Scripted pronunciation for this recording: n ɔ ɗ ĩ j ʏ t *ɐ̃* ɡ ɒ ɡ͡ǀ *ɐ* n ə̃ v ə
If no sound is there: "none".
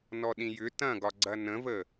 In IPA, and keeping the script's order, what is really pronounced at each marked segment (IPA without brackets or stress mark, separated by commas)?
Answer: ɐ̃, ɐ